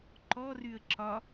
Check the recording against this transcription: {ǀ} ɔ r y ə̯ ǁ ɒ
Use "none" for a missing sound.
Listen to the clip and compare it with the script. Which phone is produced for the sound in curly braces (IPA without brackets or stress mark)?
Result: ǃ